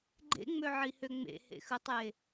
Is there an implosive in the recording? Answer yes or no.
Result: no